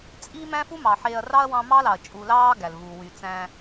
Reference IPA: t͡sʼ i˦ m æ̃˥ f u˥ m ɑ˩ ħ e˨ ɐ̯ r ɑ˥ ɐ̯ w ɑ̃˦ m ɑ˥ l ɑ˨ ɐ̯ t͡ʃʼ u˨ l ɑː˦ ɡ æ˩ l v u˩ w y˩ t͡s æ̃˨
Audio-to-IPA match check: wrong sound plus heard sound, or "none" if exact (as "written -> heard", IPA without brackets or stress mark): none